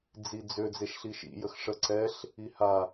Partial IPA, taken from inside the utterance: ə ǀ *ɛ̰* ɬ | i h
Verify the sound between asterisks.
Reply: incorrect: ɛ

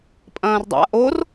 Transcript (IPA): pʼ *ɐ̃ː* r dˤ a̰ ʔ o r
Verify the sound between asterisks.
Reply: correct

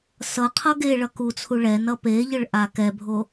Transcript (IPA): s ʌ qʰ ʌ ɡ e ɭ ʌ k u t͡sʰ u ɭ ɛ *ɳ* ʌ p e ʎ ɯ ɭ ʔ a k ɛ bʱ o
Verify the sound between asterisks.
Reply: incorrect: n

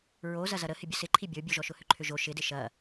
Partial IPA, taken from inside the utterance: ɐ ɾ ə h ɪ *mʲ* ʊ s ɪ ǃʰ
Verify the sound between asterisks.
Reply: incorrect: bʲ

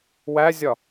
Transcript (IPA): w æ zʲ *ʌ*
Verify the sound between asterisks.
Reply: incorrect: ɒ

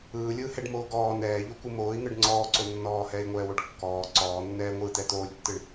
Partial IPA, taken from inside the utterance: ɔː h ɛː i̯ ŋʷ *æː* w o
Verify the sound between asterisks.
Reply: incorrect: ɛː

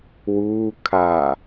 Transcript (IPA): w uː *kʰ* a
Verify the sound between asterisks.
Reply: correct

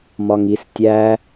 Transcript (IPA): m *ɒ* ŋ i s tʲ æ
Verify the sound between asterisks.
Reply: correct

